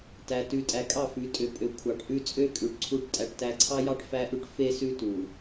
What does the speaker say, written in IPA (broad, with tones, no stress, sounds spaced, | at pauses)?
t æ˨ t ʉ˨ tʼ æ˨ kʼ ɑ˦˨ f ʉ˨˦ tʼ ø˨ pʼ ø˨ kʷʰ ɑ˨ ʈ ʔ ʉ˦ t͡sʼ ø˦ kʼ ʉ˨ ʈ ǀʰ u˦ ʈ tʼ æ˨ ʈ t æ˨ ǀʰ ɑ˦ j ɑ˦ ʈ f æ˦ ʔ ʉ˦ ʈ f e˦ s ʉ˦ t u˨